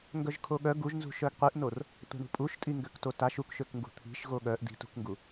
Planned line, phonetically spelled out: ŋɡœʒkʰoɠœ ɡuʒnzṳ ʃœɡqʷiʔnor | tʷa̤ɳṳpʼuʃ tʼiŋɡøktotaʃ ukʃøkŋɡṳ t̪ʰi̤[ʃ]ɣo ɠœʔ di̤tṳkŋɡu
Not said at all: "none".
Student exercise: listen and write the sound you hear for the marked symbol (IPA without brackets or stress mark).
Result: ʃ